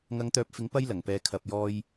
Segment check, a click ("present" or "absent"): absent